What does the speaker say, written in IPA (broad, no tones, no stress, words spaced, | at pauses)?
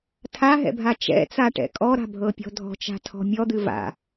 tʰaɦɛ̰bʱa t͡ʃɛ̰t͡saʈɛ̰ kʼɔɾa̤bʱɤpʲɔ̤ dʱɔ̤t͡ʃa̤tʰɔ̤ mʲɔd̪ɨ va̰